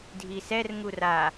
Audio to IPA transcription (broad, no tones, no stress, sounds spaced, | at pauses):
dʱ i s ɛ r ŋ u r a